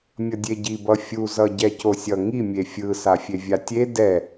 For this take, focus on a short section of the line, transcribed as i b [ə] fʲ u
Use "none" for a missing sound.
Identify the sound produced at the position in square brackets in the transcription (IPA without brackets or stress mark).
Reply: ʌ